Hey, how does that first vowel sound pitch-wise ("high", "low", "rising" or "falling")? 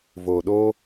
low